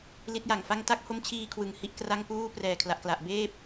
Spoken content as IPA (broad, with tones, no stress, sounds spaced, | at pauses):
l i˦˥ t̚ j a˨˩ ŋ f a˥˩ ŋ t a˦˥ k̚ h o˦˥ m t͡ɕʰ iː˧ kʰ w ɯ˩˦ ŋ h i˦˥ ʔ k r a˥˩ ŋ p uː˥˩ p r ɛː˨˩ kʰ l a˨˩ ʔ k l a˨˩ ʔ b eː˥˩ p̚